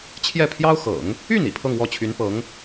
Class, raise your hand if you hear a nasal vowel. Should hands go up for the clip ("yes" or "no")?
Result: no